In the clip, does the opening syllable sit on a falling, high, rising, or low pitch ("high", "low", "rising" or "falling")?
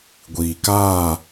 low